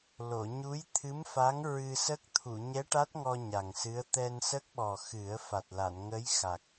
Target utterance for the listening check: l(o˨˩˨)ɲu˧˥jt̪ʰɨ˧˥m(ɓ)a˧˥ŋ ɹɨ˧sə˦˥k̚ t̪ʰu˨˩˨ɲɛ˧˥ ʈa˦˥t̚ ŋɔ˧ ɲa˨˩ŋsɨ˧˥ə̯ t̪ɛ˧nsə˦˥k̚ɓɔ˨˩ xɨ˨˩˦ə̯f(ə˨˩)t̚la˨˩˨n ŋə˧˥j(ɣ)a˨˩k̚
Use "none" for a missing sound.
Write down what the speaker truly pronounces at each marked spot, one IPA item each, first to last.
o˨˩˨, f, a˨˩, x

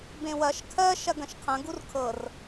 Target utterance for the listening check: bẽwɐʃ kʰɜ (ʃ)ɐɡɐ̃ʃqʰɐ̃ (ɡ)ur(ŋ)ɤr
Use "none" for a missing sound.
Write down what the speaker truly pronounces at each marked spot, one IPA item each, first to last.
ʃ, ɡ, kʰ

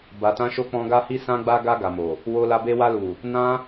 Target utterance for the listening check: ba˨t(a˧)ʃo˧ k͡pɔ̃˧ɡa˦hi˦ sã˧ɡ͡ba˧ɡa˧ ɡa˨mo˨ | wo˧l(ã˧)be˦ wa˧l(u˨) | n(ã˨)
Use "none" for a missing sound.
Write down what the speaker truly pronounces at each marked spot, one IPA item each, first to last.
ã˧, a˧, u˨, ã˧

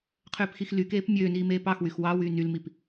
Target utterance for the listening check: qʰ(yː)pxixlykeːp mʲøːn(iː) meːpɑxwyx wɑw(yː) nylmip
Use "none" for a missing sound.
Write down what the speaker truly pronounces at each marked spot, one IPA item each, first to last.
øː, iː, yː

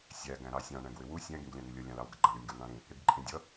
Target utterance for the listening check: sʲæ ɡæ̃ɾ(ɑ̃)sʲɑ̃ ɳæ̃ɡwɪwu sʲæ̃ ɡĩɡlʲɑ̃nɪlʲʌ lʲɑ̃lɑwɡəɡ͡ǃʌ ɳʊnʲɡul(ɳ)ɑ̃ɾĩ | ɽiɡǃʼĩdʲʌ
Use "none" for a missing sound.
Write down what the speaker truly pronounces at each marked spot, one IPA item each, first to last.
ɑ, ɳ

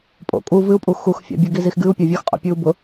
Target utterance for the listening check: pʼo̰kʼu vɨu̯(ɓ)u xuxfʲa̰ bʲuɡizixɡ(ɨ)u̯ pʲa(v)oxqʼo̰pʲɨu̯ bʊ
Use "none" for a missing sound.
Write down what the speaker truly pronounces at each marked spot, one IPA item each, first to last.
pʼ, ɨ, vʲ

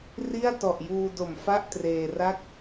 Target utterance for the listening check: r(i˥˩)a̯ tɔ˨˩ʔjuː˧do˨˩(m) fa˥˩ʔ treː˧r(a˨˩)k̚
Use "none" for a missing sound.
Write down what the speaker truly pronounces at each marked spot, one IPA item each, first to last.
i˥˩, m, a˥˩

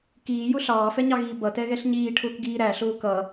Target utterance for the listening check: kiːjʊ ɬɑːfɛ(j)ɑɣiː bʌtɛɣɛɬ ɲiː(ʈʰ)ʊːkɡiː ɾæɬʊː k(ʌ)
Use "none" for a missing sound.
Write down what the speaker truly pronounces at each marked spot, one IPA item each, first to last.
ɲ, ʈʰ, ʌ

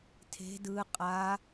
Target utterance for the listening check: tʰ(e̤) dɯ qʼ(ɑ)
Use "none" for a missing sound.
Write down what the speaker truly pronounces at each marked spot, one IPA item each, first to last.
e̤, a

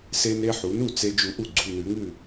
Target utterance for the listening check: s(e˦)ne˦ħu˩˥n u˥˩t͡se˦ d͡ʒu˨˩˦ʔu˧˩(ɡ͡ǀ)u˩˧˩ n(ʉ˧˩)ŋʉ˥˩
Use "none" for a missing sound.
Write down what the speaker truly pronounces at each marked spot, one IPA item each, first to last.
e˦, ɡ͡ǀ, ʉ˨˩˦

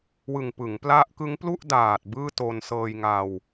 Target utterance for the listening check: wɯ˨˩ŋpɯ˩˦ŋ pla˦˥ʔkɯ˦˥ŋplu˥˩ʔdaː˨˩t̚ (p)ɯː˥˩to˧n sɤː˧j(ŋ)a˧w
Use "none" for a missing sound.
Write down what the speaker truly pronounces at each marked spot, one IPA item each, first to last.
b, ŋ

